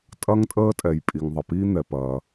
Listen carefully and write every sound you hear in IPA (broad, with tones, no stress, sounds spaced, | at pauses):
tʼ ɐ˦ ŋ tʼ əː˦ tʼ ɛ˩ j pʼ i˩ ŋ ðˤ ə˩ p iː˦ n̪ ɛ˩ p ɐː˩